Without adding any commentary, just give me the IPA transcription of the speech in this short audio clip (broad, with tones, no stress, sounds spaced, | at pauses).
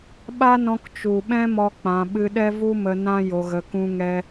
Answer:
ɓ a˦ n ɔ̃˧ k t͡ʃ u˨ ɓ ɛ̃˦ m ɔ˦ k͡p ã˧ ɓ ɨ˧ ɗ ɛ˦ v u˦ m ə˧ n ã˦ j o˧ ɣ ə˧ k ũ˦ ŋ ɛ˦